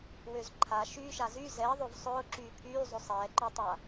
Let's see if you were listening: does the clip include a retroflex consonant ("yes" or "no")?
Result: no